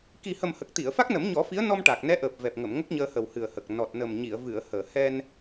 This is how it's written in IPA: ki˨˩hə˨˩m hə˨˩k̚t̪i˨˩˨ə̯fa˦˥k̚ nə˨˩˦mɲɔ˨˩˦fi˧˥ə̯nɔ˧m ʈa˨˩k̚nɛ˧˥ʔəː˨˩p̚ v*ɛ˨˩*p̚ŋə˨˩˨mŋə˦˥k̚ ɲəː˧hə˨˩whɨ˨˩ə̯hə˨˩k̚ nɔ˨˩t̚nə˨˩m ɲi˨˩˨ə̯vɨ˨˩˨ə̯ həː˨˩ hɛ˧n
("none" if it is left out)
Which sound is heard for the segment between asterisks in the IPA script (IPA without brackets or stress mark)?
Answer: ɛ˨˩